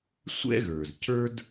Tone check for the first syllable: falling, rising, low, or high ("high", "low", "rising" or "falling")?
high